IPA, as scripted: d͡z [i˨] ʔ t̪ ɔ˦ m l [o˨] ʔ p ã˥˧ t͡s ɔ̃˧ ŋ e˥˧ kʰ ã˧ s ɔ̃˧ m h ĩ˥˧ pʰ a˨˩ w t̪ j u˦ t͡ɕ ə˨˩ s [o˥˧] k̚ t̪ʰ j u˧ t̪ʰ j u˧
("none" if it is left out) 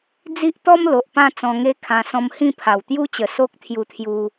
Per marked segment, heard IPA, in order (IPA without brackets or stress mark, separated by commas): i˦, o˨, o˦